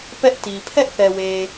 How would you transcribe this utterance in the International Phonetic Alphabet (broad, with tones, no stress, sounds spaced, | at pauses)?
p ɛ˦ ʔ t i˨ pʰ ɛ˦ ʔ θ ɛ˨ w e˨